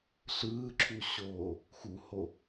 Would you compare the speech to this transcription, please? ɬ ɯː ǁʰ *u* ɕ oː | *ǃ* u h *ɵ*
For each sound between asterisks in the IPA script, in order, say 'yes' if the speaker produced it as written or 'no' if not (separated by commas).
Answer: yes, no, no